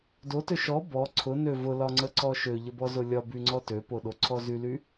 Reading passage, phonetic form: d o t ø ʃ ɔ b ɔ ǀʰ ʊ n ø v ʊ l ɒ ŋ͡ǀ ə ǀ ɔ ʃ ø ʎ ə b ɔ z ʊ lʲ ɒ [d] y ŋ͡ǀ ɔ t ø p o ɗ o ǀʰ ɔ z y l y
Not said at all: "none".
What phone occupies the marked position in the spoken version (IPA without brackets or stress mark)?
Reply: b